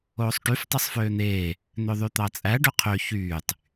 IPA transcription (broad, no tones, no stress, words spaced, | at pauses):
oːsˤʈyf tˤɯsˤføːn̪eː | n̪øðˤyt̪ɑt͡sʼæ ɖøqʰø çyːtˤ